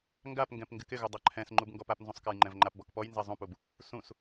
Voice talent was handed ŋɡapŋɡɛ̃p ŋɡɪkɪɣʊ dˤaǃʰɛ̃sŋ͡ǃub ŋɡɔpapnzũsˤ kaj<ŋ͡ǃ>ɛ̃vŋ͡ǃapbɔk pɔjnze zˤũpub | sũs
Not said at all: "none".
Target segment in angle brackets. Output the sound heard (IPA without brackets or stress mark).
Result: ŋ͡ǃ